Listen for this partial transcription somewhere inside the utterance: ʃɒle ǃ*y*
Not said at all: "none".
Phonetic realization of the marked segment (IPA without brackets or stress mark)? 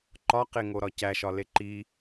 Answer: i